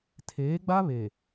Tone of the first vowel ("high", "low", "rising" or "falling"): rising